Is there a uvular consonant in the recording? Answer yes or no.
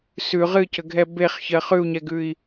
yes